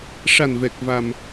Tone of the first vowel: low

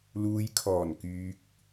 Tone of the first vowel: low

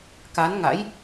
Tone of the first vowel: rising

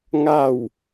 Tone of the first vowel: falling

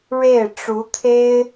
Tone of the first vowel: falling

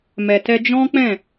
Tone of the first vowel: low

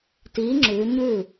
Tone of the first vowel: rising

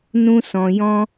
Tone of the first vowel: high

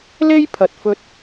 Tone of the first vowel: high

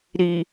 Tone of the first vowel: low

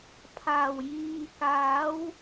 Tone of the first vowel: low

